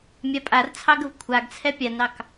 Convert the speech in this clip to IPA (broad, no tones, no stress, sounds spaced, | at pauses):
mʲ a pʼ a r t͡sʰ ɑ ɡ ə v kʷʰ a ɡ t͡sʰ ɛ pʲ a n ɑ k